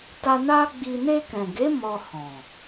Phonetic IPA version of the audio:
t a˧ n a˦ ɡ͡b i˧ n e˧ k ɛ̃˨ ɡ e˨˦ m ɔ˧ h ɔ̃˨

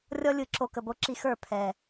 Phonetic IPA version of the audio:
rʲ ɔ˦ lʲ ɯ˧ ǁ o˧ k ə˨ b o˧ ǁ i˧ x ə˞˦˨ pʰ ɛ˨

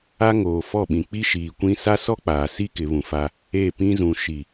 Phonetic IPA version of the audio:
a˦ ŋ oː˨ f ɔ˦˨ ɓ ĩ˨ k͡p i˦ ʃ iː˨ kʷ ĩ˦ s a˦ s ɔ˦ k͡p aː˨ s i˦ k ɪ˨˦ β ũ˨ f a˦ | e˦˨ p ĩ˦ z ũ˨ ʃ i˨

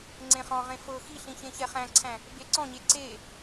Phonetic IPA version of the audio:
ŋ͡ǀ ẽ χ ɔ̃ ʁ ẽ f ɤ x i ɬ ĩ ç ẽ ç ɛ χ æ̃ ǀʰ æ̃ | b e ǀ ɔ̃ ɲ e ǀ e

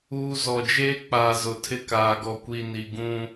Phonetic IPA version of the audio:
uː˦ z ɔ˨ d͡ʒ eː˦ k͡p aː˨ z ʊ˨ tʰ ɪ˦˨ k aː˨ ɡ ɔ˨ kʷ i˨ n i˨ ɡ ũ˦

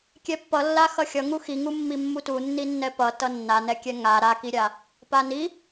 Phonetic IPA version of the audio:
kʲ ɛ pː ʌ lː a x ʌ xʲ ʌ ŋ u x i ŋ u mː i mː u t u nː i nː ɛ p ʌ t ʌ nː a n ɛ kʲ ɛ ŋ a ɾ a k i ɾʲ a | p a n i

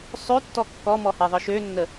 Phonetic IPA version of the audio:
sˤ ø tː ɔ kː ɔ m ɔ h e ðˤ ɯ ʃ ø nː ə

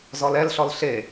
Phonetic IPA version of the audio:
z ɔ l ɛ l ɬ ɔ l ɬ e

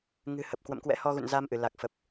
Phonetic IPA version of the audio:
ŋ ɨ̤˨˩ h ə˨˩ p̚ k w ə̰˧˨ m k w ɛ̰˧˥ h ɔ˧ ɣ ṵ˧˨ n z a˧ m ʔ ɨ˧˩ l a˨˩ k̚ f ə˨˩ p̚

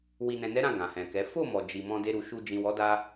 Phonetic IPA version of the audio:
w i˨ n ɛ̃˨ n ɛ˨˦ ɾ ã˦˨ ɡ ã˨ h ɛ̃˨ k ɛ˨˦ f o˦˨ m ɔ˨ d͡ʒ i˨ m ɔ̃˧ d e˧ ɾ u˨ ʃ u˧ d͡ʒ ĩ˨ w ɔ˨˦ d a˧

